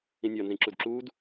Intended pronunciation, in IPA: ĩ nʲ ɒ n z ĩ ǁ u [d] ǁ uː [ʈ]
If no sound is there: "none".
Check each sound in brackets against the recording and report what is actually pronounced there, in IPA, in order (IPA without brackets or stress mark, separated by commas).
d, d